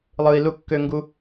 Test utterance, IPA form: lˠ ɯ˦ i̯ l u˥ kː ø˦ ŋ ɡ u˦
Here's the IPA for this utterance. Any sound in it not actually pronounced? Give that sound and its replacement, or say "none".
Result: none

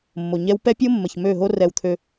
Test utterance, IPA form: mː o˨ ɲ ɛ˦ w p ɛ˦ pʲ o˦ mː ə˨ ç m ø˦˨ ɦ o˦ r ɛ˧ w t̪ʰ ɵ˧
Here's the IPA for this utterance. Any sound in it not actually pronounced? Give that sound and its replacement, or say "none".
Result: ɵ˧ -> ø˧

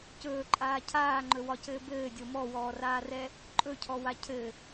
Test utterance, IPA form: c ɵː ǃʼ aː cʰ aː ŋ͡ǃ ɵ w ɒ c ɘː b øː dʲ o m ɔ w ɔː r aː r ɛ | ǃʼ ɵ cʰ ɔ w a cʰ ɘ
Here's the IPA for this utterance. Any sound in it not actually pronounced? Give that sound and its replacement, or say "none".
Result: øː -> ɘː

